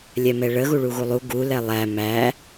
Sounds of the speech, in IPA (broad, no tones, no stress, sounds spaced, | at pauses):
lʲ ɛ m ɛ ɭ ə ɣ u ɭ u ɣ u lˠ u ɡ u l ɛ lˠ æ m æ